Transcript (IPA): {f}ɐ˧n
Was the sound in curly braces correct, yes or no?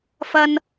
yes